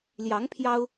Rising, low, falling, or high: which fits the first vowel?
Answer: rising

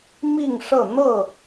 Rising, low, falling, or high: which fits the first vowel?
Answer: falling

